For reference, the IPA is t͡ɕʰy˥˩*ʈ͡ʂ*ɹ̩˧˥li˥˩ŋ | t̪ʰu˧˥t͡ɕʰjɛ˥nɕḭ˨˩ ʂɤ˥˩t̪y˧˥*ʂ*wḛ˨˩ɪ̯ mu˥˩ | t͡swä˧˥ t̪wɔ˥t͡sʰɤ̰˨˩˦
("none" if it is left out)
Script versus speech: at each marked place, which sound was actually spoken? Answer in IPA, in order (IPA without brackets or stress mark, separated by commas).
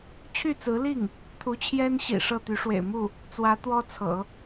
t͡s, ʂ